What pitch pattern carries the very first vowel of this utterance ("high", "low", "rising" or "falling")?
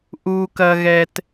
low